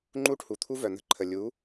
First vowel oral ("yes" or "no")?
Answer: yes